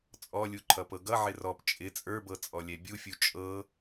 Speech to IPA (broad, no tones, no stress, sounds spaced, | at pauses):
t͡sʼ ɔ lʲ u ǃʰ ʌ p ɤ ɡ ʌ ʕ ɪ r ɔ p t͡ʃʼ ɪ t͡sʼ ə˞ b ɤ t͡sʼ ɔ lʲ ɛ bʲ u fʲ u t͡ʃʼ ɤ